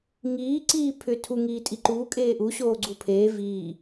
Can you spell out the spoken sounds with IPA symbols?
ŋiː ǀiːpʰʏ tʰu ŋiːtʼiǃuː kʼeːʔu ɕoːɡ͡ǀupʰeː viː

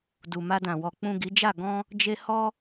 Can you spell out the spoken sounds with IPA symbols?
du˨ma˧dã˨wɔ˨ k͡pũ˨ ɡi˨˦d͡ʒa˦˨ ɡɔ̃˧ | d͡ʒe˧ hɔ˧

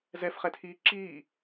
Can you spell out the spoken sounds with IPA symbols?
zɛfχɛtʰiː ǁiː

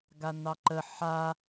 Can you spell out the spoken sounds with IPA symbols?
ɡanɑǃə ħa

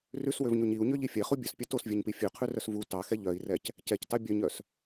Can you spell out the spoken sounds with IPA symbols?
rʉswøvɲoɲ iu̯ɲøʎi fʲɛχu bʲœspʲɛ tosvʲɛɲpi fʲøqʰʉrœs vu tɑxɛ ʎœi̯rɛc | cɛctɑ bʲœɲœs

